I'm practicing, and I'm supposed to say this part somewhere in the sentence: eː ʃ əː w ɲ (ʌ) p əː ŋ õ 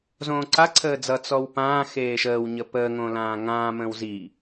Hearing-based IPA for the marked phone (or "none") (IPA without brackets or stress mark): ə